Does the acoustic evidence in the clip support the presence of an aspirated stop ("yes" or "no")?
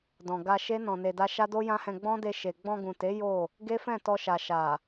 no